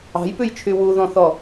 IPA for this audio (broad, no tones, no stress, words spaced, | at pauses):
ɑ̤jpʉjt͡ʃʰy wuðɔ̃θɔ